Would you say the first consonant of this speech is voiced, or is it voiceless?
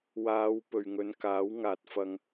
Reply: voiced